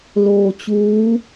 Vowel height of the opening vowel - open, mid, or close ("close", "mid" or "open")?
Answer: mid